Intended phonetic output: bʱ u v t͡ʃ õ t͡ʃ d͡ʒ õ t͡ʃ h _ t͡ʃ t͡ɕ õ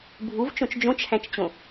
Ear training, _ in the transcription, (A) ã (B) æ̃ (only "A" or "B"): B